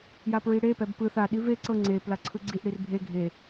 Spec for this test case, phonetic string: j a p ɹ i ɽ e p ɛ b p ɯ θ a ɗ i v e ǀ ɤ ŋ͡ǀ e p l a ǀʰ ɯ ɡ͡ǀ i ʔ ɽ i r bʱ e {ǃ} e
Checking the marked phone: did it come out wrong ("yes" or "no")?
yes